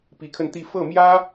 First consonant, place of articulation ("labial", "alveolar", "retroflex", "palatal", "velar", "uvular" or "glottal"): labial